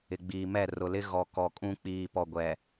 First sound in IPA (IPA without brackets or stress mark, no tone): ɪ